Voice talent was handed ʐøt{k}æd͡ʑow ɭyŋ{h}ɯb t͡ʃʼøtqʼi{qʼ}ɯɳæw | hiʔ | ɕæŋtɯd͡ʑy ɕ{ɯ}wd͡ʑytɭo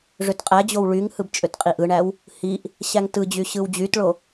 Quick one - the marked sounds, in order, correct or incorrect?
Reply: incorrect: qʼ, correct, incorrect: ʔ, correct

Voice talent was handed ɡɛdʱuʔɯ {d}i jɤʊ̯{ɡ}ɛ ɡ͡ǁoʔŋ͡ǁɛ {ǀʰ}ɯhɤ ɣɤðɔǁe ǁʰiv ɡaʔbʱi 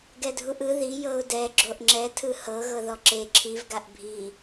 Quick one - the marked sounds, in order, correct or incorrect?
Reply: incorrect: ð, incorrect: d, incorrect: tʰ

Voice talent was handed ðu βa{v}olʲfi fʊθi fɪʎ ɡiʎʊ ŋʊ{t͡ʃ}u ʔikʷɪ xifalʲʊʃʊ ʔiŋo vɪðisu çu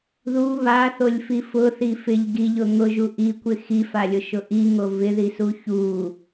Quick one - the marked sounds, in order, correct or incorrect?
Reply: incorrect: θ, incorrect: ʒ

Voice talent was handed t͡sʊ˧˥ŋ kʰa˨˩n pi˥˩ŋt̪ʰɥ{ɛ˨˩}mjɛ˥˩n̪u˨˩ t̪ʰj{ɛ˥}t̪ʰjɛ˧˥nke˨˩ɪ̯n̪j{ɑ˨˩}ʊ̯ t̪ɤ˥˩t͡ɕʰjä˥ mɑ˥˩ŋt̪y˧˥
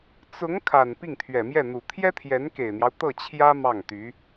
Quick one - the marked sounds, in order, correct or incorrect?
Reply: correct, correct, incorrect: ɑ˦

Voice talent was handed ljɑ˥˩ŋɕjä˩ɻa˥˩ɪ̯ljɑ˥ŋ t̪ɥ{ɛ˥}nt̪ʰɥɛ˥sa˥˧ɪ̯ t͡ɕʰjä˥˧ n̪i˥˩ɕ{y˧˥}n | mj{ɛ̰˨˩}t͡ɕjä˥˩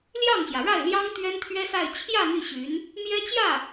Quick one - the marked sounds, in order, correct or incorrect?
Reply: correct, correct, incorrect: ɛ˥

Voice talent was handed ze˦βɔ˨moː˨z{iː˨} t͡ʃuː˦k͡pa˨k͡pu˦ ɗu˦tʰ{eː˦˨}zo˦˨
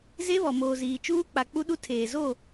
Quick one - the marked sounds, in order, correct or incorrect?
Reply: correct, incorrect: eː˨

